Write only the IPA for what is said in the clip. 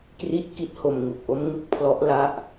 k r i˥˩ t̚ k i˥˩ t̚ h o˧ m ŋ u˨˩ k̚ ʔ o˦˥ m ŋ ɯ˦˥ k̚ pʰ l ɔ˦˥ ʔ l a˥˩ ʔ

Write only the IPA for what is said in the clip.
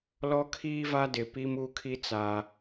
l ɔ˦ kʰ iː˦ v a˦ d ɪ˨ p i˦ m u˦ kʰ i˦ t͡s a˨

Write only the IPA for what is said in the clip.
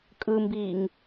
kʼ ɯ m b iː ŋ

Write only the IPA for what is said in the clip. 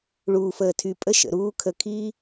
ɭ uː˨ f əː˨ tʰ y˨ pʼ ə˦ ʃ ə̰˨ ɾ uː˦ kʰ ə˧ kʰ i˦

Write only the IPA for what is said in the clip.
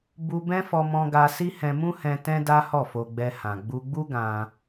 b u˧ b ɛ̃˦ f ɔ˧ m ɔ̃˧ ɡ a˧ s i˦ h ɛ̃˧ m ũ˦ h ɛ̃˧ t ɛ̃˦ d a˦ h ɔ˦˨ f o˧ ɡ͡b ɛ˧ h ã˨ ɡ͡b u˧ ɡ͡b u˦ ɡ ã˧

